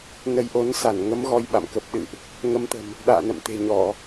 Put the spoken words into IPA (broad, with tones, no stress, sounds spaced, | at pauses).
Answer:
n ə˨˦ j ʔ o˨˦ n s a˧˩ n ŋ ə˨˦ m ɣ ɔ˧ j ɓ a̰˧˨ m k ə˨˩ p̚ ɗ ɨ̰˧˨ ʔ | ŋ ə˨˦ m t̪ ə̤˨˩ m | ɗ a̰ː˧˨ n ə̰˧˨ m t̪ e̤˨˩ ɲ ɔ˧˩˨